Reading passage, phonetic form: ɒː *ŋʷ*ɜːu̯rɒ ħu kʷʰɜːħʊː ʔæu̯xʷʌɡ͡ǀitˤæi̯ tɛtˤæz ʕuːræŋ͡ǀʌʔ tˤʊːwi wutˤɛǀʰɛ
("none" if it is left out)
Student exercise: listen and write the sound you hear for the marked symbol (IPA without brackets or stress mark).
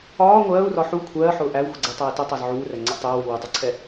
ŋʷ